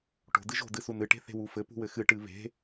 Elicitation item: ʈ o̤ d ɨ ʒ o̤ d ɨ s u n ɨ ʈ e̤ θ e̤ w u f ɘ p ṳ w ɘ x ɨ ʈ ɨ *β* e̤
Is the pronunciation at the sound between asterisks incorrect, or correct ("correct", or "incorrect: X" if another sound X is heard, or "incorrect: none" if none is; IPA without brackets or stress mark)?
correct